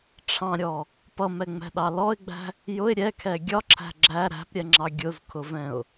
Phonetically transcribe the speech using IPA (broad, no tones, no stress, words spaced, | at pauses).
ʈ͡ʂʰɑ̃ɾʲɔ | pʌmɛŋ͡mɛ̤ɗɑ lɔɪ̯ɡ͡bæ̤ | jʊɪ̯ ɾʲɛkʰɛ ɡʲɒǁʰæ̤ ɡ͡ǁæ ɾæ̤pɾʲɛŋ͡ǁɑ ɡʲʊzkʰʊvɛ̃ʊ̯